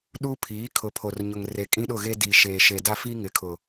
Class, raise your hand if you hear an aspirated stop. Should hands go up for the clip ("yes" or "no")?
yes